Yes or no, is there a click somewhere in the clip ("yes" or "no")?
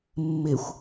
no